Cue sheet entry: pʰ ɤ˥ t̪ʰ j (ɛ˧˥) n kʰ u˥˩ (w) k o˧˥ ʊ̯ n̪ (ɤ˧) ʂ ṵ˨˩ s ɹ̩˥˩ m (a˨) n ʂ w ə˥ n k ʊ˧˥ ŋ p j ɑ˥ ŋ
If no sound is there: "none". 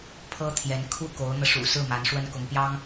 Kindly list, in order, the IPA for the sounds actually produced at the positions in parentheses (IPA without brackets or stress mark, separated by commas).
ɛ˧˥, none, ɤ˧, a˧˥